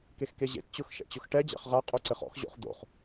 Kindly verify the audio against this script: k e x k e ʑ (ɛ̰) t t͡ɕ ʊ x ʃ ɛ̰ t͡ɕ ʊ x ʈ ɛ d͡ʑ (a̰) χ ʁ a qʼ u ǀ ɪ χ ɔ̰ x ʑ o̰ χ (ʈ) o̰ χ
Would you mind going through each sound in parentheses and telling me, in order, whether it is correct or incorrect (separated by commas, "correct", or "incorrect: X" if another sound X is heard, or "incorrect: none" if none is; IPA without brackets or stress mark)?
incorrect: ḛ, correct, incorrect: d̪